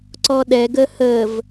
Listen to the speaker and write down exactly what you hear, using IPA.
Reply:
ǀ ɔ ɗ ɛ ɡ ə h ə v

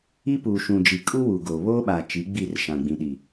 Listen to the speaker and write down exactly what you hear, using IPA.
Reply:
i˦ p uː˨ ʃ ũ˨ d͡ʒ i˨ kʼ u˦ w uː˨ ɡ oː˨ β oː˦ ɓ a˨ t͡ʃ i˨˦ ɡ͡b i˦˨ r ʃ ã˨ ɡ͡b ĩ˨ ɗ i˨

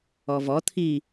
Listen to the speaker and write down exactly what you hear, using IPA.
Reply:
ɔ v ɔ t̪ʰ i

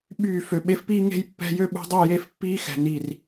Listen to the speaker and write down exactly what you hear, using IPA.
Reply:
ɓ yː˦˨ f ø˨ ɓ e˧ f p iː˦ ŋ e̤˦ j pː ɛ̤˦ j ø˦ ɓ ṳ˧ dˤ y˦˨ j e˦ f pː iː˦ x ɛ̤˨ n i˨ r

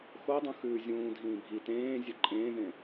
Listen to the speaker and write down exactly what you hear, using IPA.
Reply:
x o dˤ ũ x ʉː zʲ ũː dʱ ĩː bʱ i t ẽː zʲ e ǃʼ ẽː ð ẽ

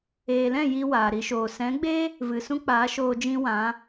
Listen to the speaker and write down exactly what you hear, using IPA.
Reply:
eː˨ l ɛ̃˦˨ j i˦ w aː˨ ɾ i˧ ʃ oː˨ s ɛ̃˨˦ ɡ͡b e˦ | v ɨ˨ s ũ˦ k͡p aː˨˦ ʃ oː˧ d͡ʒ ĩ˦ w ã˨˦

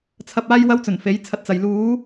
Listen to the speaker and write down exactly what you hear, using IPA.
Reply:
t͡sʰ ɐ˧ p̚ aː˥ j w ɐ˥ w t͡s ɵ˨˩ n f e˨˥ j t͡sʰ ɐ˧ t̚ t͡s ɐ˨ j l uː˨˥

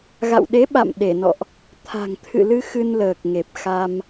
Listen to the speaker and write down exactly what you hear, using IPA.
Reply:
ɣ a̰˧˨ w ɗ e˨˦ ɓ a̰˧˨ m ɗ e˧˩ n ɔ̰˧˨ ʔ | t̪ʰ a̤˨˩ ŋ t̪ʰ ɨ̰˧˨ l ɨ˧ x ɨ˧ n l əː˨˩ k̚ ŋ e˨˩ p̚ x a˧ m

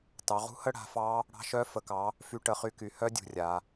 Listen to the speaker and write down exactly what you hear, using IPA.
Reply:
t ɑ˩˧ ʁ ṳ˦˥ h ə˦˥ ɽ a̤˩˧ f ɑ˦˥ | ɽ ɑ̤˦˥ ʃ œ˦˥ f ə˩˧ k ɑ˩˧ | f y˦˥ ʈ ə˩˧ χ y˦˥ k y˩˧ h œ˦˥ dʲ ṳ˩˧ rʲ a˩˧

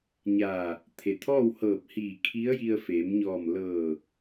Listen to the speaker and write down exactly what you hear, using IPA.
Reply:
ɲ aː˧˩ | t̪ʰ e˩ t̪ʰ ɔː˥˨ w h ɤː˧˩ p̚ h iː˧˩ kʰ i˧˥ ə̯ j i˧ ə̯ f e˩˧ m ɲ ɔː˧˩ m l ɤː˧˩

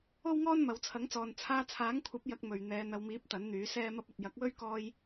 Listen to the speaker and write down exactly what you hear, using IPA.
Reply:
o˥ w ŋ ɔː˥ n m ɐ˨ w t͡sʰ ɐ˨˥ ŋ t͡s ɔː˨ n t͡sʰ aː˧ t͡sʰ aː˨˥ ŋ kʷʰ ɐ˨˥ p̚ j ɐ˧ k̚ m ɵ˨ ɥ n̪ ɛː˨˧ n̪ ɐ˨˧ w m iː˨˥ p̚ t̪ ɐ˨˥ n n̪ yː˨˥ s ɛː˥ m ɐ˥ p̚ ɐ˨ t̚ j ɐ˨˥ k̚ w ɵ˥ ɥ k ɔː˧ j

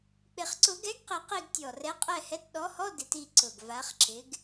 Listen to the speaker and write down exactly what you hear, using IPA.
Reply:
k͡p ɪ˨˩ χ ǀ ʊ˨˩˦ ɡ ɛ˨˥ ɡ q i˨˩ q i˦˨ ɡ tʲ ɔ˨˩ r ɛ˨˥ qʼ ɛ˦˨ h ɛ˨˥ t ɗ ɔ˨˥ h ɔ˧˥˧ d ɪ˨˩˦ t i˦˨ ǀ ʊ˨˩ ɡ v a˨˥ χ ǁ ɪ˨˥ ɡ

